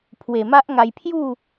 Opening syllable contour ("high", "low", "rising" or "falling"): low